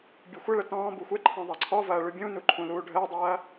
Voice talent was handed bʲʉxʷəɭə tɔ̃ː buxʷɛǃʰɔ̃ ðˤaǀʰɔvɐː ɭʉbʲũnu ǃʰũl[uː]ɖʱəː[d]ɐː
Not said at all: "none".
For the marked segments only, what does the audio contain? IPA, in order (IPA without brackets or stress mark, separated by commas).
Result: uː, dˤ